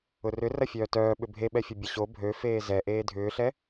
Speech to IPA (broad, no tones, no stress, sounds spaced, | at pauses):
ʊ r ʏ r ɐ fʲ œː t œː ɓ ʏ bʱ e ɓ ɛ fʲ ʊ bʲ ɐ ɕ o bʱ ø f eː z ɛ ʔ eː dʱ ʏː ɬ ɛ